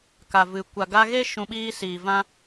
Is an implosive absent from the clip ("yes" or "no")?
no